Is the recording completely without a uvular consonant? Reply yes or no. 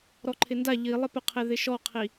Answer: no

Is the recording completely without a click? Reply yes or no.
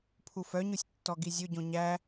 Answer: yes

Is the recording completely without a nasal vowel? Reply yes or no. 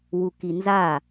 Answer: yes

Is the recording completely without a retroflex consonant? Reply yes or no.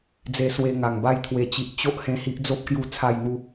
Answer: yes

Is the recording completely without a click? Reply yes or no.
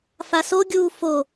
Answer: yes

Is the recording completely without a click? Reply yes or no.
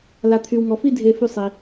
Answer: yes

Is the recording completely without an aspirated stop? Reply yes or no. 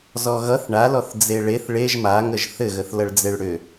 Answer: yes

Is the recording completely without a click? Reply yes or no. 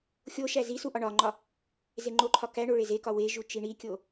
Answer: no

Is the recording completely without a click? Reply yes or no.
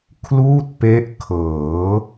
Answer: yes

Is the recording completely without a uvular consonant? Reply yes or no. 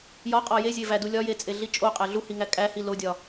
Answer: no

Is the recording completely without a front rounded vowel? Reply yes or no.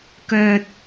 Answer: no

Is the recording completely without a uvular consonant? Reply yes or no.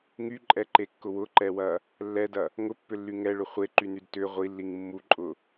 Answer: no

